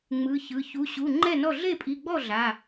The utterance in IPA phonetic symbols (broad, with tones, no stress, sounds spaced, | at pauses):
ŋ͡m ɯ˩˧˩ ç ɯ˩˧˩ ç u˩˧˩ ɕ u˩˧˩ ŋ͡ǃ ɛ˥˩ n ɔ˥˩ ɮ e˥˩ pʼ i˩˧˩ ɡ͡b ɔ˥˩ ɮ a˩˧˩